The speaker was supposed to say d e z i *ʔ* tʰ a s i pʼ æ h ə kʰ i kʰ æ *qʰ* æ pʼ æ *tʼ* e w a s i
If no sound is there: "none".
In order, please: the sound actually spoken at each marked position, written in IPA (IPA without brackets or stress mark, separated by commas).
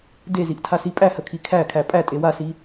ʔ, kʰ, tʼ